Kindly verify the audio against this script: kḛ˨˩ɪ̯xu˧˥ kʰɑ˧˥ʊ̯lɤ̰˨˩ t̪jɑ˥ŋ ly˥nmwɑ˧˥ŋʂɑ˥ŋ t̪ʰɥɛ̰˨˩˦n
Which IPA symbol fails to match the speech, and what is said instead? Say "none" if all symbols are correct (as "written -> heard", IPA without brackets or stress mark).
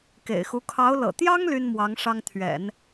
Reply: none